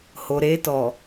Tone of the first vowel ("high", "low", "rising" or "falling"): low